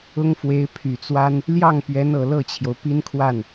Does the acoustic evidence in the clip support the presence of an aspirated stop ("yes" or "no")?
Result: yes